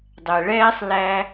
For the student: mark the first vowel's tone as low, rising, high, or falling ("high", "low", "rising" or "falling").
low